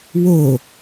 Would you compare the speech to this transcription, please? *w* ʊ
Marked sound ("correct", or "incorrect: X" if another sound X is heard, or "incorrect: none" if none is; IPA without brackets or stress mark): correct